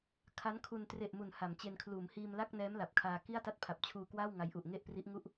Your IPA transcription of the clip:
kʰa˦˥nkʰu˧n tre˨˩ʔmu˩˦n ha˩˦mt͡ɕe˧n kʰluː˩˦mhiː˧mla˥˩k̚nɛː˦˥m la˨˩p̚kʰaː˧ ki˥˩a̯ta˥˩t̚ pʰa˨˩p̚t͡ɕʰuː˧kwaː˥˩w ŋa˧jʔu˨˩ʔŋe˥˩ʔpri˦˥ʔ ŋu˥˩ʔ

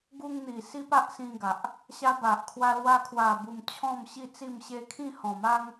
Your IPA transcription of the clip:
ɡu˧ŋn̪i˨˩ si˦pa˦ʔsĩ˧ɡa˨ʔ | ɕa˦ ba˨ʔkʰwa˧lwa˧ kʰwa˨˩bu˨˩m t͡ɕʰɔ̃˥˧mɕi˥˧t͡si˥˧m ɕe˧kʰĩ˥˧hɔ̃˨˩ma˦ŋ

